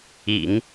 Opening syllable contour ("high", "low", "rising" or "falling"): low